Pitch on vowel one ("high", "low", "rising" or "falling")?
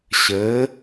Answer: rising